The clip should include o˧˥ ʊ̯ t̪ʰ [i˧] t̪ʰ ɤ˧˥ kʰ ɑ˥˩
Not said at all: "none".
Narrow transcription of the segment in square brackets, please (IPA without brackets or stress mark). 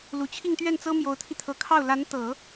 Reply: i˧